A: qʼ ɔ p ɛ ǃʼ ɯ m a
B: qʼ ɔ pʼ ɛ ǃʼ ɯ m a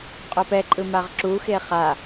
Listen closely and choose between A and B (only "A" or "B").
A